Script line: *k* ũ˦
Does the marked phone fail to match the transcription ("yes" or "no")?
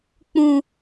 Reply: yes